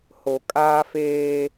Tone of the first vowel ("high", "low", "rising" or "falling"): low